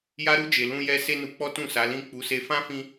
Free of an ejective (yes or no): yes